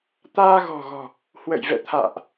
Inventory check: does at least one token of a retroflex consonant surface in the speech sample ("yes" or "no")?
no